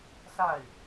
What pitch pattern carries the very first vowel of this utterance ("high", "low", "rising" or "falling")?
falling